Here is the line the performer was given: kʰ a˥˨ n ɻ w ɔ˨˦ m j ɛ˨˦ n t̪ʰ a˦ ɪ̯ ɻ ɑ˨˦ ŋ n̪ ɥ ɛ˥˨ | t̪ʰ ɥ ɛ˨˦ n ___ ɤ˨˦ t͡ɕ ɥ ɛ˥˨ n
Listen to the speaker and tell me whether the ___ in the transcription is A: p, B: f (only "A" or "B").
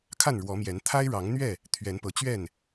A